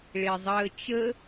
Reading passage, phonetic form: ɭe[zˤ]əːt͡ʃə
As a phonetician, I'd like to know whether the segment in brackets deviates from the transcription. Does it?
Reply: no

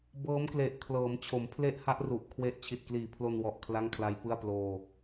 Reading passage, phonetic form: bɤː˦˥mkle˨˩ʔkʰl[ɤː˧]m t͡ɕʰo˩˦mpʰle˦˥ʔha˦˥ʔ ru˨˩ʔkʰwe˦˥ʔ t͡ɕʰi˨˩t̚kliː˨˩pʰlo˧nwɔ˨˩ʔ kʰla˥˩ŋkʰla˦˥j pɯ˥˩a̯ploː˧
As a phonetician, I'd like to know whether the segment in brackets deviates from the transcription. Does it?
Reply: yes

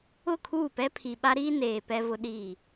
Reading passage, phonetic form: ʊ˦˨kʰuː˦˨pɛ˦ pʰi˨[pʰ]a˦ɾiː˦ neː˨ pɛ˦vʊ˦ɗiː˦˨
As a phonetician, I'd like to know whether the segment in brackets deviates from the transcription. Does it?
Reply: yes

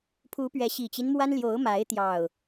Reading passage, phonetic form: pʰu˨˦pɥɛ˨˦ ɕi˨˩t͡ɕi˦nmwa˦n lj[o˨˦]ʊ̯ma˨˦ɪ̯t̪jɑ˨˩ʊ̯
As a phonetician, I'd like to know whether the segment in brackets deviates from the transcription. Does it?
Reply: no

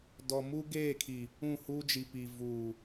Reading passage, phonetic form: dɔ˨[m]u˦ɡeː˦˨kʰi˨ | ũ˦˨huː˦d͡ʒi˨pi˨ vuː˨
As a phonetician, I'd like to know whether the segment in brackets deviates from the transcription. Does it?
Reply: no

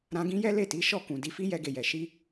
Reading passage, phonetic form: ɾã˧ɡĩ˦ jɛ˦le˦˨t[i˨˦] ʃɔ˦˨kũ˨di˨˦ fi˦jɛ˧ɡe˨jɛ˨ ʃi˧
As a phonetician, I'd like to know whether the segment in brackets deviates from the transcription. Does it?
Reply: no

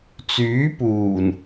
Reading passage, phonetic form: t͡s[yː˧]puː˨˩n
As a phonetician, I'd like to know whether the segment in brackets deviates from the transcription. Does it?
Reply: yes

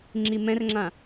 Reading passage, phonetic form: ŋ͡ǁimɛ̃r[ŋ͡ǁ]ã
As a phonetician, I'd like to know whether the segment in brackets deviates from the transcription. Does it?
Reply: no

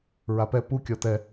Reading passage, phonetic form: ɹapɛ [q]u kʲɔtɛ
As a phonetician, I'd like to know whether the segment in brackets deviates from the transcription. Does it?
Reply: yes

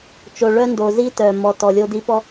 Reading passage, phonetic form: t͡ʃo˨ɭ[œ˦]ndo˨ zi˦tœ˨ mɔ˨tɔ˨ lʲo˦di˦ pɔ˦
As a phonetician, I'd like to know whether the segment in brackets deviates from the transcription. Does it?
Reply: no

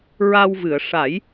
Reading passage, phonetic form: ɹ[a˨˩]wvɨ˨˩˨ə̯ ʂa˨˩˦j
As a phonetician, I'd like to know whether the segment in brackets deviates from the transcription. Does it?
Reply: yes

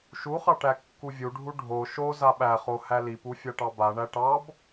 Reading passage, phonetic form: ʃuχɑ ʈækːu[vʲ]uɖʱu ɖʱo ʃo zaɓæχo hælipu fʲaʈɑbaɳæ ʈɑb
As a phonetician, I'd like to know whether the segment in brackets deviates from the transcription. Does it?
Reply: no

